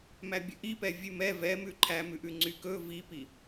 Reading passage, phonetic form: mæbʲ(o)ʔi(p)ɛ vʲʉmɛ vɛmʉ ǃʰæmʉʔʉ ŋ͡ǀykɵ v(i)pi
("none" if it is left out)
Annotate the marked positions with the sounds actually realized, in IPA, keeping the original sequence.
ɵ, p, i

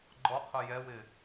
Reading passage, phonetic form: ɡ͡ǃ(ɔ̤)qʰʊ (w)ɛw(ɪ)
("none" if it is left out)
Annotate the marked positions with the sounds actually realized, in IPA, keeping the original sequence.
ɔ, j, ɪ

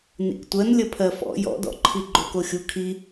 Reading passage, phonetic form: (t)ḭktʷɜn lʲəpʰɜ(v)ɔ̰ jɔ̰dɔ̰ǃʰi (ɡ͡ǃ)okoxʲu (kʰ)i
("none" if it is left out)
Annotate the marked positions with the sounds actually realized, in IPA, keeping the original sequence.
n, f, ɡ͡ǃ, kʰ

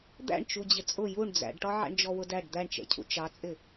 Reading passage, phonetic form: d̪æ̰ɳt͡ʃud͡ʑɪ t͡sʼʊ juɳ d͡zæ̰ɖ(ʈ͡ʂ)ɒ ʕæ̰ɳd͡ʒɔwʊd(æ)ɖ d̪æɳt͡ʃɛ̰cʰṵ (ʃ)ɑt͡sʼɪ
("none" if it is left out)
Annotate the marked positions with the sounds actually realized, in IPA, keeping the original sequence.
ʈ, æ, t͡ʃ

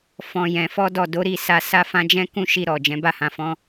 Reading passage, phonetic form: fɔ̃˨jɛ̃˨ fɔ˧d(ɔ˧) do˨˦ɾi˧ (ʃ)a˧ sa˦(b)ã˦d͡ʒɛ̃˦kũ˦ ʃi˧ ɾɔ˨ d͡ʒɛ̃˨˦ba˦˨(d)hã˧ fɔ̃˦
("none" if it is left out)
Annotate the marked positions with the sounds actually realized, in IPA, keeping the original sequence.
ɔ˨, s, f, none

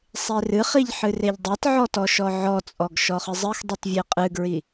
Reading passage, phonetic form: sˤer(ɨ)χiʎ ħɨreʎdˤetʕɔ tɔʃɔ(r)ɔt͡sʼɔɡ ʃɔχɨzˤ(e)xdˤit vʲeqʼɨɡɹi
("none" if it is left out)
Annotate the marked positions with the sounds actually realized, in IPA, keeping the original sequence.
ɨ, ʕ, ɨ

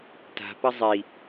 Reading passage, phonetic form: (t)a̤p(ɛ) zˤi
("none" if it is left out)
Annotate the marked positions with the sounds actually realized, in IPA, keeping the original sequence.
t, ə

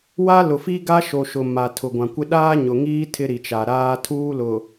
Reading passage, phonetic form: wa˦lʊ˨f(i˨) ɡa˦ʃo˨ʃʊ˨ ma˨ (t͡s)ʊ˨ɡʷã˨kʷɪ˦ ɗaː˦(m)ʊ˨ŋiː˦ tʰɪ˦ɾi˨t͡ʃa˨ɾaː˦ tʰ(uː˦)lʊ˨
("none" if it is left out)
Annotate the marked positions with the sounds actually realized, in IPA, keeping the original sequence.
i˦, tʰ, ɲ, uː˦

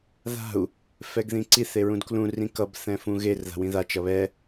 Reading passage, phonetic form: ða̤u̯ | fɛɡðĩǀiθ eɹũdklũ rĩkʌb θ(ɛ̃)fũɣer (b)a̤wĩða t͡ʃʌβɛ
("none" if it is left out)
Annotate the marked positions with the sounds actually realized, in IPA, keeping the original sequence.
ɛ̃, ð

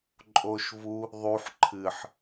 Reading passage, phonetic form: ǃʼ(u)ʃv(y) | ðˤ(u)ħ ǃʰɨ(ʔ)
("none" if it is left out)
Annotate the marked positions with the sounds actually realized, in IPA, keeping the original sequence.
o, u, u, ħ

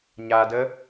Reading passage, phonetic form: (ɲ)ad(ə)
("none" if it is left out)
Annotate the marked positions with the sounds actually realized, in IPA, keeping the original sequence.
ɲ, ə

